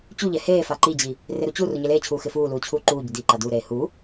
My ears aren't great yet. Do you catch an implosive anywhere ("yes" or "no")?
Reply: no